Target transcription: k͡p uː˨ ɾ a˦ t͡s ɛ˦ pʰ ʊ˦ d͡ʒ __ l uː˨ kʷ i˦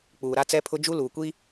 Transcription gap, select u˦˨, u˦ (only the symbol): u˦